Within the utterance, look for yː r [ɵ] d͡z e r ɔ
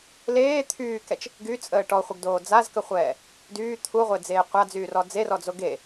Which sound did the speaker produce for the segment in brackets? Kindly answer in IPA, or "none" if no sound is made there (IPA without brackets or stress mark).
ɔ